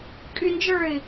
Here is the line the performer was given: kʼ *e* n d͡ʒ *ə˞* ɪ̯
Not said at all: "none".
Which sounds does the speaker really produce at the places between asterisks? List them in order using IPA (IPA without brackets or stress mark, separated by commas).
y, ə˞